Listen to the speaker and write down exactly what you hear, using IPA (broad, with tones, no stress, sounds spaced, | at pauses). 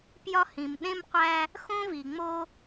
p j ɒ˦ h ĩ˩ m ɗ ẽ˥ m qʷ æ˦ | x õ˥ v i˩ ŋ͡m o˦